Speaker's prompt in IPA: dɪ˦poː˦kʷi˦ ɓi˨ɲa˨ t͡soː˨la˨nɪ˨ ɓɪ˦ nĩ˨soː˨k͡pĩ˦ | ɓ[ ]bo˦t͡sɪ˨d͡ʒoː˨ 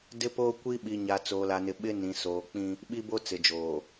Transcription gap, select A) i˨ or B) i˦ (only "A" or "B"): B